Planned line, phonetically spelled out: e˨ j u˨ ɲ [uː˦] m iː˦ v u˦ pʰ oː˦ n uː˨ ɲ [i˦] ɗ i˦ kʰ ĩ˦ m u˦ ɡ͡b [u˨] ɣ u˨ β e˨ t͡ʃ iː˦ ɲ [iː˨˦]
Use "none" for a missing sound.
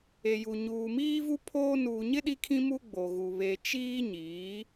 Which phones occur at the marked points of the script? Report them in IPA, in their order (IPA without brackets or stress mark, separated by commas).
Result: uː˨, ɪ˦, o˨, iː˨˦